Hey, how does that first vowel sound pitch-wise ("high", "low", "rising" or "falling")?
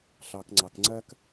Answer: low